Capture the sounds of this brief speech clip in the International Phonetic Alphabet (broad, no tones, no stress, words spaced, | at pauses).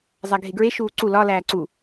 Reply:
zˤæɡʱeɡɹe ʃuːǀu lɒ læːǀu